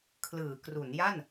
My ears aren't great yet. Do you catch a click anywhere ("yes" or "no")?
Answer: no